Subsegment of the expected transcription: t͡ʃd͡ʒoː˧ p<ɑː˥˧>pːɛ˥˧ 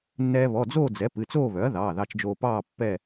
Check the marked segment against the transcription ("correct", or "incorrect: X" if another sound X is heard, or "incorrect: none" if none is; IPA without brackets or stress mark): correct